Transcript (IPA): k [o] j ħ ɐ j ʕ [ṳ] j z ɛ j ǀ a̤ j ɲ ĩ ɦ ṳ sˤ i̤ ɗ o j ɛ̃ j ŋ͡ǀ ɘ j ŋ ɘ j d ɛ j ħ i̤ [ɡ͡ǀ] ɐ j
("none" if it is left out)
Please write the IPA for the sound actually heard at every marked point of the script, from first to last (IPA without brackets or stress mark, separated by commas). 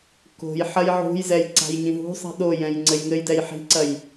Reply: o̤, ṳ, ǀ